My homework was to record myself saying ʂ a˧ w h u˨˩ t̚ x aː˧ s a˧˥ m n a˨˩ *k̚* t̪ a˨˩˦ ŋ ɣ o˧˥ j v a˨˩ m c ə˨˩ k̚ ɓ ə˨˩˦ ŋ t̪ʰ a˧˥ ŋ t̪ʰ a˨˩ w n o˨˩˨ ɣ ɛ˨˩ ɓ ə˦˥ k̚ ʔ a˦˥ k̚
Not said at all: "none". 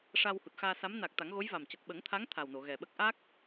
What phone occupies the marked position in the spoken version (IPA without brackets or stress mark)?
k̚